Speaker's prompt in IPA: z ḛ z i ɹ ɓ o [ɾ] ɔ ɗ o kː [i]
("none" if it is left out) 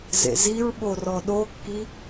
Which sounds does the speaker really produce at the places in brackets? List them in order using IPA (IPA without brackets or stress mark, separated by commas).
r, i